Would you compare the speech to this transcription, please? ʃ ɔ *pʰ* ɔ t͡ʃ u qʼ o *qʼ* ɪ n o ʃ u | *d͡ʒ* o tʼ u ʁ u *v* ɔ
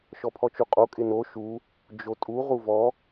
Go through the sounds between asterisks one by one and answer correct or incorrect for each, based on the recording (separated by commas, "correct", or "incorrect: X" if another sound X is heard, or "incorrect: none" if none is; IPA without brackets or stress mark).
correct, incorrect: kʼ, correct, correct